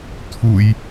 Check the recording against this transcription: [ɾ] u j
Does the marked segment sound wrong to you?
yes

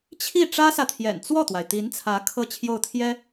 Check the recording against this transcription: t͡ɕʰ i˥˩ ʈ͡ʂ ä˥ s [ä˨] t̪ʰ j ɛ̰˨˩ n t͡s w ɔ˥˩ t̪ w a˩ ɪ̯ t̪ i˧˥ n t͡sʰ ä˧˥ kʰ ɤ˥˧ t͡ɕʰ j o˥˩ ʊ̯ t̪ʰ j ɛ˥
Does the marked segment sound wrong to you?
no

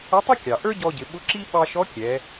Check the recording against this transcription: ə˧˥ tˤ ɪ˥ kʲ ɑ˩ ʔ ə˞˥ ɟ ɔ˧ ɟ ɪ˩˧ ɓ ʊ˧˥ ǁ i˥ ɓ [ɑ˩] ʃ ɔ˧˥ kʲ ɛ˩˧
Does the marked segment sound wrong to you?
yes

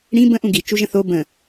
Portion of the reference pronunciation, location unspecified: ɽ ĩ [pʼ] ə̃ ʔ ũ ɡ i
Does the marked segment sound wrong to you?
yes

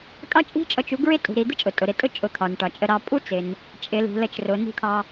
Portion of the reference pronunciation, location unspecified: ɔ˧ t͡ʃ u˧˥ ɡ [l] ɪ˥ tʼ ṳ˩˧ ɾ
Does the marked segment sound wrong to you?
yes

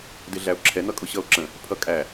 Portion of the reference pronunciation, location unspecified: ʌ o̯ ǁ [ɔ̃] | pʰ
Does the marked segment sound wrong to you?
yes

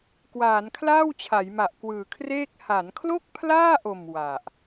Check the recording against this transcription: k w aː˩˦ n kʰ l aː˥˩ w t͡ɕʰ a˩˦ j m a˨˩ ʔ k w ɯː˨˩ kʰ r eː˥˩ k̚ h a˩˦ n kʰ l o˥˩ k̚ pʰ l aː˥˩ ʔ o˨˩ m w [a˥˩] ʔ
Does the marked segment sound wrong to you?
yes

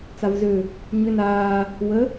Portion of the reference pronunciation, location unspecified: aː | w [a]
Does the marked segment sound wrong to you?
yes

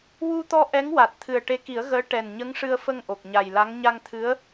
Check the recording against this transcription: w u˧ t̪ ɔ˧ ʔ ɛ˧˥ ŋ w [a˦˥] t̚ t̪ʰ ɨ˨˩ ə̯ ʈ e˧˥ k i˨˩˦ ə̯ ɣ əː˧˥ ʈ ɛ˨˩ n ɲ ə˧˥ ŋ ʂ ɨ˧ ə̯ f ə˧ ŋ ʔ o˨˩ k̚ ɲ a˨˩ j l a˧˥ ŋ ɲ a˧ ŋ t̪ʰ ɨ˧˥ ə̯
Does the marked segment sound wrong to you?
yes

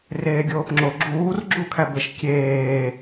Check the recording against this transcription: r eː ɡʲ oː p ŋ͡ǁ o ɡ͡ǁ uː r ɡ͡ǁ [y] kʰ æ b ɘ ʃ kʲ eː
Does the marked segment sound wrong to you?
yes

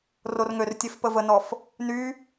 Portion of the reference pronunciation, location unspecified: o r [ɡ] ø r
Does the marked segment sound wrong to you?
yes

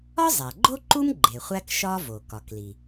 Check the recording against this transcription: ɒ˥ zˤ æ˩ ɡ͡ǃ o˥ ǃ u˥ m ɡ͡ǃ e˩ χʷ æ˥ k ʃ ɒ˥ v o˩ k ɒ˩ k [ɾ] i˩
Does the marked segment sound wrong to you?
yes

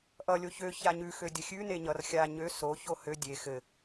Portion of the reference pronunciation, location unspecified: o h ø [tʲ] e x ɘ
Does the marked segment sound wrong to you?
yes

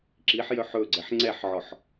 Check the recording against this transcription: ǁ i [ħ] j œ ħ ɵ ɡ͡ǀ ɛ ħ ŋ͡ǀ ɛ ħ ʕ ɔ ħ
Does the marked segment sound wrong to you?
no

